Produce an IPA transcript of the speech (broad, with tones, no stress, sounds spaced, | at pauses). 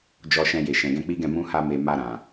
d͡ʒ ɔ˧ ʃ ɛ̃˧ j e˨ ʃ ɛ̃˨ ɡ ɛ̃˧ k͡p i˦ ɡ ɛ̃˦˨ m ũ˧ h a˧ m e˨ m a˧ ɾ ã˨